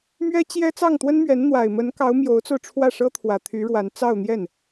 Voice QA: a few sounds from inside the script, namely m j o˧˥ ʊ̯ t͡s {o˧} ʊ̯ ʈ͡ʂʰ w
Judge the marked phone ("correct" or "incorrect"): correct